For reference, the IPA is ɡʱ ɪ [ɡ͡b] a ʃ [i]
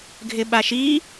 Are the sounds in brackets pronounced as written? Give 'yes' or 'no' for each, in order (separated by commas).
no, yes